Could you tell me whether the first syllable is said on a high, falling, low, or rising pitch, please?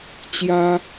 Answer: high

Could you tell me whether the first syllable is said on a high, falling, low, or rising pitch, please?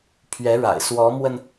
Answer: rising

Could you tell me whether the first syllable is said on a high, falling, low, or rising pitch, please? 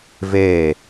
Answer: falling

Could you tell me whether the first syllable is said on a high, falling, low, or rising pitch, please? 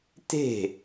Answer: falling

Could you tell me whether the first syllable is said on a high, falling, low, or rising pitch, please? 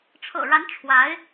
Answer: low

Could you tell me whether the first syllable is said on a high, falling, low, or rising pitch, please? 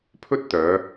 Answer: high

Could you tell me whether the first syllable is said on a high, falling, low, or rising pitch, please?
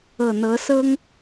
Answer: low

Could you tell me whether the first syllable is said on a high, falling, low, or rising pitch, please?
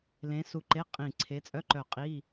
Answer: rising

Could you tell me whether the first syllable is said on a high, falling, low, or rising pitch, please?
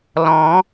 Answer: rising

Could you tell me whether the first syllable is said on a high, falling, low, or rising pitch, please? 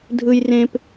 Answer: high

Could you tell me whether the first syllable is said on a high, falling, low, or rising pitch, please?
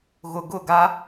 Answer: low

